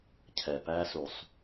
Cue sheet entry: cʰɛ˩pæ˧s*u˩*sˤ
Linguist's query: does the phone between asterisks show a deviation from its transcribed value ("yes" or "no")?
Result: no